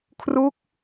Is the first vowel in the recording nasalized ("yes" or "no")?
no